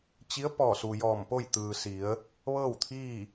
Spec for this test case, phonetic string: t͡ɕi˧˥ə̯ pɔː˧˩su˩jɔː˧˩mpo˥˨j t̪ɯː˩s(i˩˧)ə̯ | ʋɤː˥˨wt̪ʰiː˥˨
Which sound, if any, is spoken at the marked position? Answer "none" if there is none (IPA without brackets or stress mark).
i˩˧